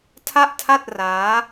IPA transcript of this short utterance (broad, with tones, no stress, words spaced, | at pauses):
tʰa˥˩ʔtʰa˥˩t̚ raː˦˥